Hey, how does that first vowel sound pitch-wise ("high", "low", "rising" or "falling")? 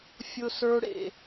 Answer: high